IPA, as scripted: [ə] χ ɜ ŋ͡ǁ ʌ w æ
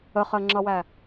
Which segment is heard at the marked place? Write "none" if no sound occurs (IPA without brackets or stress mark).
ə